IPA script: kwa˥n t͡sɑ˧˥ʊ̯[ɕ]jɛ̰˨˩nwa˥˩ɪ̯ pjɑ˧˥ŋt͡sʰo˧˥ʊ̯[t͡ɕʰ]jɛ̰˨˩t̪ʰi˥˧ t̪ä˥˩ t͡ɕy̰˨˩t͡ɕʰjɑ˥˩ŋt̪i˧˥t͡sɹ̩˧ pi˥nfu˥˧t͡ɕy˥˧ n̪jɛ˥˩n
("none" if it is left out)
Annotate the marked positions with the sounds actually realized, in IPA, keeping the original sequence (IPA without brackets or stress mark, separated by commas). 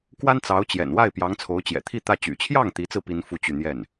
t͡ɕ, t͡ɕ